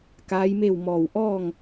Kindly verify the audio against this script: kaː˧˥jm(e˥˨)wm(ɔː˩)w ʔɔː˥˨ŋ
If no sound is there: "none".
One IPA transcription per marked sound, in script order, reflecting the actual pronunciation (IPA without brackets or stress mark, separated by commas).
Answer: e˥˨, ɔː˧˩